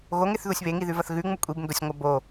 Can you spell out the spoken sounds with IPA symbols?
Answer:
ɣ o ŋ e θ ð u sʲ β e ŋ i ð ʉ v ɐ θ ɣ ʉ ŋ͡m u kʷʼ i b n d o sʲ ŋʷ ɐ b o

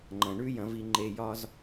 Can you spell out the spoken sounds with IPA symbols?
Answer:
ŋ͡ǃ ɐ̃˨ ɳ ʉ˦ j ɐ̃˨˦ v i˧ ŋ͡ǃ e˧ j ɒ˦ z

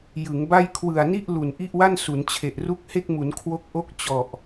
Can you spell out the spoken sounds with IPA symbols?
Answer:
j ɯ˩˦ ŋ b a˥˩ j kʰ w ɯ˨˩ a̯ n i˥˩ ʔ l u˨˩ n ʔ i˥˩ ʔ w a˥˩ n s u˩˦ n t͡ɕʰ e˨˩ ʔ r u˦˥ k̚ h e˥˩ k̚ m u˩˦ n kʰ w o˦˥ k̚ ʔ o˥˩ k̚ t͡ɕ ɔ˨˩ ʔ

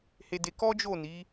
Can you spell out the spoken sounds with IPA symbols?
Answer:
h e˧ d e˧ k ɔ˦ d͡ʒ o˦˨ n i˨˦

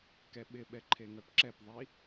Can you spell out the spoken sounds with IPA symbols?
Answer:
k ɛ ɓ ɪ ɓ ɛ ǃʰ e ŋ œ p ǁ ɛ p ðˤ i

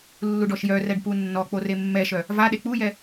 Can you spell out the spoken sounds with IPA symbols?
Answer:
lː u ɖ ɔ ʃ j œ r ɛ ɖ p u nː ɔ k͡p o r e mː ɛ ʃ œ | v a ɗ e k͡p u j ɛ

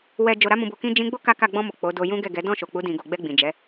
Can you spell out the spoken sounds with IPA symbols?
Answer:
w ɛ˧ d͡ʒ o˧ ɾ a˦ m ũ˧ b o˧ k ĩ˦ d͡ʒ ĩ˦ ɡ͡b o˦ k a˦ k a˦˨ ɡ͡b ɔ̃˧ m o˨ k͡p o˨˦ d o˧ j ũ˦ ɡ ɛ˦˨ ɡ ɛ˨˦ d ɔ̃˦˨ ʃ o˨ k͡p u˨˦ d ĩ˧ ɡ o˧ ɡ͡b ɛ˧ ɡ͡b ĩ˨ d͡ʒ ɛ˨˦

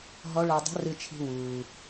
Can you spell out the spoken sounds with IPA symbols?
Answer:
ɦ ɔ˧˥ ɭ ɛ˧ dˤ ṳ˧˥ r ɨ˧ t͡ʃʰ i̤˧ w uː˩

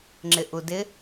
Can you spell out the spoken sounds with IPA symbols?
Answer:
ŋ͡ǁ ɪ ʔ u d ɪ

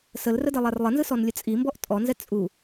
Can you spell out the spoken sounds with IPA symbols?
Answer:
s ə l r ə d ɛ lˠ a r lˠ ə n z ɯ s ɔ n lʲ ə t͡sʼ i m b ɔ ʔ tʼ ɔ n z ɛ t͡sʼ u

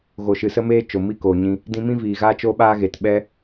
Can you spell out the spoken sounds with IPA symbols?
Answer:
ɣ o˨ ʃ ɨ˨ s ə˦ m eː˦ t͡ʃ o˨ m i˦ k o˨ ɲ ĩ˧ | d ĩ˧ m ĩ˦ v iː˨ ɣ aː˦ t͡ʃ o˦ ɓ aː˦ ɣ e˨ t ɓ ɛ˦

